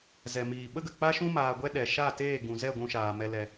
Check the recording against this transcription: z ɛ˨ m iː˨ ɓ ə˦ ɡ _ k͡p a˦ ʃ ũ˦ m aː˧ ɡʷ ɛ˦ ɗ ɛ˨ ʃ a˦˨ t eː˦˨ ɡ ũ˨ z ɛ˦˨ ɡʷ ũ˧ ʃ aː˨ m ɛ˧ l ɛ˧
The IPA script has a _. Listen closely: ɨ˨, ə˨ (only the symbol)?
ə˨